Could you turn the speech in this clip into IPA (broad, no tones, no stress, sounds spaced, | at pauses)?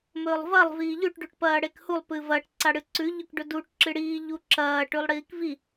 m ɵː lˠ v ɐ lˠ v iː ʎ ʉ ʈ ɖ ʉ ʈ p ɐː ɽ e k h u lˠ p ɨ v ɐ ʈ ǀ a ɽ ɨ ǀ ʉ ʎ ɵ k ɖ ɵ d u ʈ ǁ ɨ ɽ iː ʎ u ǁ ɐː ʈ ʉ lˠ ɽ iː k v i